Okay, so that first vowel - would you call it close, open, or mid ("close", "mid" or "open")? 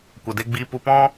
mid